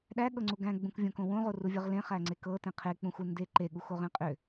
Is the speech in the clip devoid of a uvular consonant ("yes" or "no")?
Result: no